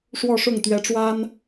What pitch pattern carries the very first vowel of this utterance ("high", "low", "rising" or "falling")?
falling